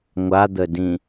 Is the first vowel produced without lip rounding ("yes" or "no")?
yes